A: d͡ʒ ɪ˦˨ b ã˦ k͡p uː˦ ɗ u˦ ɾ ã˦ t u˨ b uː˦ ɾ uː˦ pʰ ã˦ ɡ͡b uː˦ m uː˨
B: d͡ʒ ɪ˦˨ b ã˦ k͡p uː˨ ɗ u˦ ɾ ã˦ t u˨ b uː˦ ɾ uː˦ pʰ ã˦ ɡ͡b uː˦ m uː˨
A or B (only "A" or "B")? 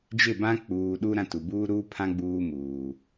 B